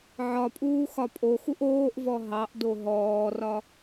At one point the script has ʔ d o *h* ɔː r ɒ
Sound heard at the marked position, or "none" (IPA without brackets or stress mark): ɦ